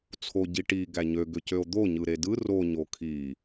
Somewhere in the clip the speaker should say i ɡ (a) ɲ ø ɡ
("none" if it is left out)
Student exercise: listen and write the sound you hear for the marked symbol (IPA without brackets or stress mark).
æ